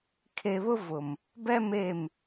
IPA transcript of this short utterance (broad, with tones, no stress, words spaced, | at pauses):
kʰe˨βʊ˦ vʊ˨m | bɛ˦ me˦˨m